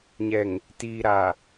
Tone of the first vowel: low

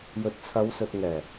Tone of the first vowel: low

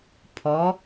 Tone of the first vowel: rising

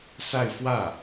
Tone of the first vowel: falling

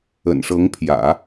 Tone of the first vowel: low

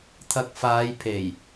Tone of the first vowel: low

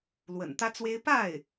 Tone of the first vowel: low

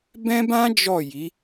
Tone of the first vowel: high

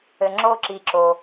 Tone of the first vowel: low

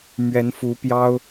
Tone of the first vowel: rising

